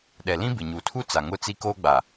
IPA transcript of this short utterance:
ɗ ɛ˨ l ĩ˦ b ɪ˨ ɲ uː˨ tʰ u˦ t͡s a˨ ŋ ʊ˦ t͡s i˦ k oː˦ ɡ͡b a˨

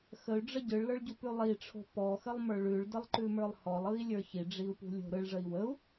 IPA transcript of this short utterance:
x ə y̯ ɖ͡ʐ ə ɟ ɯ ɭ l ə˞ ɭ ɟ u p ʉ lˠ i ʈ͡ʂʰ o̤ p ɔ x ə lˠ m ə˞ ɭ ʉ ɭ d ə lˠ ǃ ʉ m ə˞ lˠ h ɔ lˠ ɯ i̯ lʲ ə˞ ç i ɖ͡ʐ i u̯ p ṳ lʲ o̤ ɾ ɯ ɭ ʐ ə i̯ w ə u̯

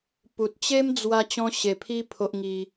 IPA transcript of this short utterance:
p u˨ t̚ t͡ɕ e˦ m d͡z w a˧ t͡ɕ ɔ̃˦ ɕ e˧ pʰ i˦ pʰ o˦ ʔ ŋ i˦

